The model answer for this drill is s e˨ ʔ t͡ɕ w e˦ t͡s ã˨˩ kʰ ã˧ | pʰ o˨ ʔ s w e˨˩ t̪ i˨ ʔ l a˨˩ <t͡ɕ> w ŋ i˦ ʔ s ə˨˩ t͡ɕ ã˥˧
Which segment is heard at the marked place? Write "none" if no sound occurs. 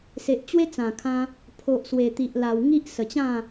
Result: none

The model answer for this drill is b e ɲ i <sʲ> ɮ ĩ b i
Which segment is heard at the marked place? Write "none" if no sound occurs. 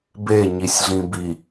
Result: sʲ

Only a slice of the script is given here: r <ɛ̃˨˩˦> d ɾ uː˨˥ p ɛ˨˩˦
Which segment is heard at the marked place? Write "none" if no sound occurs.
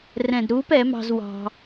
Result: ɛ̃˨˩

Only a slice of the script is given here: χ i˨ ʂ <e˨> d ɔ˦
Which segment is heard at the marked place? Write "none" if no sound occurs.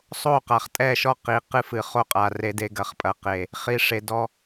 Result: e˨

